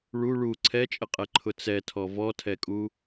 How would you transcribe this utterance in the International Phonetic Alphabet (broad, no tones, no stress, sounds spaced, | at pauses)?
ɭ u ɭ u ǀʰ ɛ t͡ʃʼ ə qʼ ɛ ǃʰ ʊ t͡s ɛ tʰ ɔ v ɔ tʰ ɛ kʼ u